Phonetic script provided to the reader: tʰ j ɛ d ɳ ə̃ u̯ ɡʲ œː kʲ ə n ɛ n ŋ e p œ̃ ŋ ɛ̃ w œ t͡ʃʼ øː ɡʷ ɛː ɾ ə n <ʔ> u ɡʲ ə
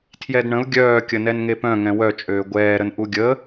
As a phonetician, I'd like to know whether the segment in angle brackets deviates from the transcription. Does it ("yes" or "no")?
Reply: no